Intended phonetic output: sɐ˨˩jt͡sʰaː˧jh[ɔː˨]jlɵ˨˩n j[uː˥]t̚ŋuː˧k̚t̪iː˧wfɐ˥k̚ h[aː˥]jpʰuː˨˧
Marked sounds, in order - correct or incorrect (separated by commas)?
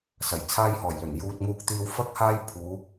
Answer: incorrect, incorrect, correct